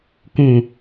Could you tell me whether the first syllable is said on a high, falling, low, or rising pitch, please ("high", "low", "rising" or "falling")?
low